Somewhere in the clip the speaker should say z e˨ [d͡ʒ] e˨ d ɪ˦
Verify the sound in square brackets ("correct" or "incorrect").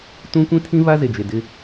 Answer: correct